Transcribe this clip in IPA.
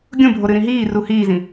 ɡʲ ũ bʱ o ɾ ɨ ɾ ĩ ɦ iː r u h iː z ĩ

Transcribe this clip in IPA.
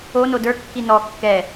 o n o d ə˞ kː i n ɔ kː ɛ

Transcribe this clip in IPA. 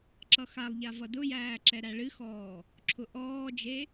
ǁ ʌ x a lˠ ʎ a v ʌ d ʊ j æː ǁ ɛ ɾ æ ɭ ɨ x ɔː | ǁʰ ʊ ʔ ɔː d͡ʒ e

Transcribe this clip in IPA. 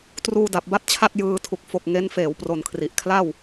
t r uː˧ d a˨˩ p̚ b a˥˩ t̚ t͡ɕʰ a˥˩ t̚ j ɯː˧ tʰ u˨˩ k̚ f o˨˩ k̚ ŋ e˦˥ n f eː˩˦ w p r o˨˩ n kʰ r i˨˩ ʔ kʰ l a˥˩ w

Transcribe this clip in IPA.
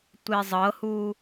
tʷ e zˤ ɤ h u

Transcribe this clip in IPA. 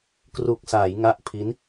k r u˨˩ k̚ s a˩˦ j ŋ a˦˥ ʔ pʰ i˦˥ n

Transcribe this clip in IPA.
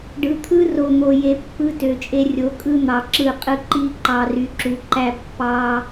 ɖ ɯ˨ t̪ʰ ɯ˦ r o˨ n̪ o˨ j e˨ pː ɯ˦ t ø˨ t͡ʃʼ e˦ rʲ o˨˦ kʼ ɯ˦ n̪ ɑ˨ ǁ ɯ˦˨ qʼ ɯ˦ ǃ i˦ ǃ ɑ˨ r y˨ ǁ u˨ ǃ æ˦ pː ɑ˦

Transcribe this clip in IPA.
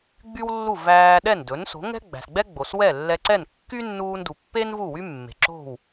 ɡ͡b y˥ w lː u˥˩ v æː˧ ɗ ɛ˥˩ n d ɵ˩˥ n s o̤˩˥ ŋ ɛ̤˥ ɡ͡b æ̤˩ s ɡ͡b ɛ˥ ɡ͡b o˩ s w ɛ˥˩ lː ɛ˧ ǀ ɛ˥˩ n kː y˥ nː uː˧ n d u˩ pː e˥ n v u˥˩ w y˥ mː e̤˩ ǁ o̤˥˩ w

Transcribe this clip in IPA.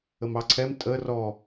ə m ɑ ǀʰ ɛ m tʼ ə r ɔ

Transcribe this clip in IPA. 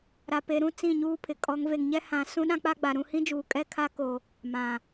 ɾ a˨ p e˨ ɾ ũ˦ t͡s ĩ˦˨ ɲ uː˦ pʰ ɪ˨ kʼ ɔ˨˦ ŋ v e˨ ŋ ɲ ɛ˦ h ã˨ s ũ˦ ɗ ã˦ k͡p a˦ ɡ͡b a˨ ɾ ũ˦˨ h ĩ˦ d͡ʒ uː˨ kʼ ɛ˦ kʰ a˦ k o˨ | m ã˨

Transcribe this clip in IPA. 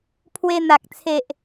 pʰ w e˧ n̪ a˨ k̚ t͡sʰ e˨ ʔ

